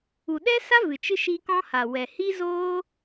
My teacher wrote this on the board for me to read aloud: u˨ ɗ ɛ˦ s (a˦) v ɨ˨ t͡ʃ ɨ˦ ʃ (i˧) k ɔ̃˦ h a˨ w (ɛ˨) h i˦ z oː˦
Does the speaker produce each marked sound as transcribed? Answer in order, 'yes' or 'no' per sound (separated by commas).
yes, yes, yes